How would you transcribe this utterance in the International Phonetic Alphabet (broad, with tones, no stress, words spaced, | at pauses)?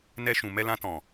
nɛ˧ʃũ˨ mɛ˧lã˧tɔ̃˨